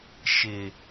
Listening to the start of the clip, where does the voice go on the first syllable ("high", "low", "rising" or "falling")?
low